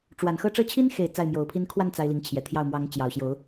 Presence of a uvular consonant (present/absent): absent